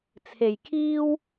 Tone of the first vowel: low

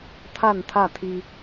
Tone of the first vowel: falling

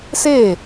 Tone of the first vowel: falling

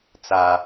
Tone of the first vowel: high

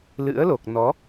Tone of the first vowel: rising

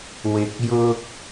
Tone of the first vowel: low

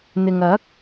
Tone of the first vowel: low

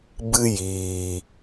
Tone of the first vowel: high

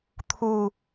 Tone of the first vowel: falling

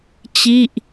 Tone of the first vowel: falling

